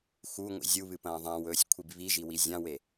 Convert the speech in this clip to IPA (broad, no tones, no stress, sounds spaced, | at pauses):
x u ŋʷ ḭ zʲ u β ɨ p ɐ̃ː ðˤ ã w ɵː sʲ kʷʰ i b β i ʒ i w i zʲ ã w e